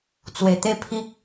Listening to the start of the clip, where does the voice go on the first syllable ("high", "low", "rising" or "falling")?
low